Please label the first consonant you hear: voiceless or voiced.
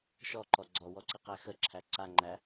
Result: voiceless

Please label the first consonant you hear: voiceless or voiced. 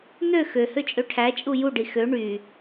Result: voiced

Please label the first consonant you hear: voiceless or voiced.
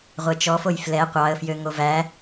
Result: voiced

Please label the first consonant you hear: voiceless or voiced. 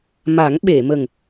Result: voiced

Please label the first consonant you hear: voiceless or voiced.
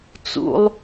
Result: voiceless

